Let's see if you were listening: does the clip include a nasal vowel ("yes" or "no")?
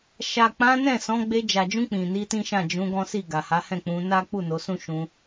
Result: yes